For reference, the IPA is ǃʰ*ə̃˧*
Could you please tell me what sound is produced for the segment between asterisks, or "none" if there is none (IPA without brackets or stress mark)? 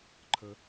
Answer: ə˧